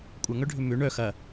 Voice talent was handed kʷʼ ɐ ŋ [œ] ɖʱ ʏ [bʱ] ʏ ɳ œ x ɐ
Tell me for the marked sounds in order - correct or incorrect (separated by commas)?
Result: correct, incorrect